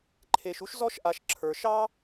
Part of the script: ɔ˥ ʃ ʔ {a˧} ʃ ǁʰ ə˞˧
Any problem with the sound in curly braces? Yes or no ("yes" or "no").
no